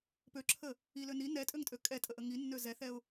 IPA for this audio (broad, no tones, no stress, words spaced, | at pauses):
pøǁʰə | ilø ni nɛtʼøŋtʼø kʼɛtʼəʔə ŋinːø zɛθɛʊ̯